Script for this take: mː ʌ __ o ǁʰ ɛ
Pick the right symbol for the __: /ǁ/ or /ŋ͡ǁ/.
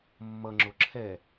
ŋ͡ǁ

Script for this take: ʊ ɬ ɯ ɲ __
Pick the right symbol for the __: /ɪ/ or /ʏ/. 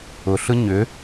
ʏ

